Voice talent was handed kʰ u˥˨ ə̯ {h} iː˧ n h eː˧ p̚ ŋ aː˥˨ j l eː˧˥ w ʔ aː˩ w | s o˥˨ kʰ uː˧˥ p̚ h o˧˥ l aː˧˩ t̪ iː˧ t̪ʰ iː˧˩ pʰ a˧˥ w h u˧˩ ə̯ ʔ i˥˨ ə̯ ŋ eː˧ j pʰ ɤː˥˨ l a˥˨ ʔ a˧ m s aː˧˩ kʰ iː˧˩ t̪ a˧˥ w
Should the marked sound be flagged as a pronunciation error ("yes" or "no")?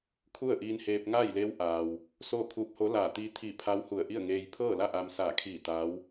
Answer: yes